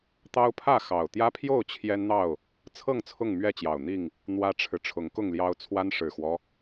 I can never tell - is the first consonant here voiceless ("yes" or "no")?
yes